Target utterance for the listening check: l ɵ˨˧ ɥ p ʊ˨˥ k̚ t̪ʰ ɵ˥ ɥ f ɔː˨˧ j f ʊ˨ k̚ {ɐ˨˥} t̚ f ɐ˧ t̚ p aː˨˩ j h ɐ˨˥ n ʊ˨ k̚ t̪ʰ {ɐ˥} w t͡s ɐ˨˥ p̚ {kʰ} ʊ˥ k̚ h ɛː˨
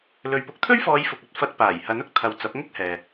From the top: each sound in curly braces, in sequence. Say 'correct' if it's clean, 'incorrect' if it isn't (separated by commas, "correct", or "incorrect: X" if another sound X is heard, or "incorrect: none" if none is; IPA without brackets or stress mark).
correct, incorrect: ɐ˧, incorrect: ŋ